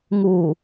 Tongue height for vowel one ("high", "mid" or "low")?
high